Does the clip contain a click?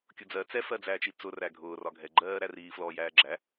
yes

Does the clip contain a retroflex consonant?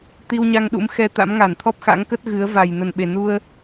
no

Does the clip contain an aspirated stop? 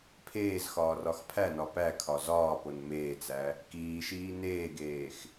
yes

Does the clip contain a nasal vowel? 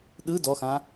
yes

